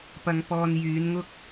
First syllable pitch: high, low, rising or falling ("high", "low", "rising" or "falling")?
low